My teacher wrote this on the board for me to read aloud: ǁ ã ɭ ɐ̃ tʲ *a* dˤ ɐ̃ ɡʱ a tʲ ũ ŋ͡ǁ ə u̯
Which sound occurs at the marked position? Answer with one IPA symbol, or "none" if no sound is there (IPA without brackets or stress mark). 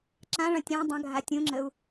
ã